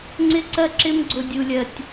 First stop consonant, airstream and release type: click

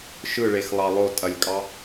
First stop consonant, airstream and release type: ejective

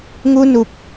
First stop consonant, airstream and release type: plain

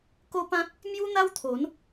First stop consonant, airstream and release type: plain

